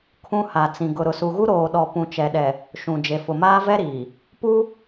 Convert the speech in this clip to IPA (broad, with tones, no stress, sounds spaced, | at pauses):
kʰ ũ˦ h a˨ t͡s ĩ˨ ɡ ʊ˨ ɾ ʊ˨ s u˨ ɣ u˦ ɾ oː˨ ɗ ɔ˨ p ũ˨ t͡ʃ ɛ˨ ɗ ɛ˨ | ʃ ũ˨ d͡ʒ e˨ f ʊ˨ m aː˦ v ɛ˦ ɾ iː˨ | p u˦